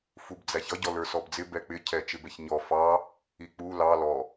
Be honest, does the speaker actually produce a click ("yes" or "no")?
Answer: no